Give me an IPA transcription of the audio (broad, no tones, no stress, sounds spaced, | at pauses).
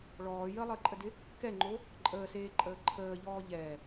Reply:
ɭ ɔː j ə lˠ əː ǃʼ ə d ɪ | k ɛ ŋ͡ǃ o | ǃʼ əː s eː ǃʼ əː ǃʰ əː ʎ ɔː ʎ ɛ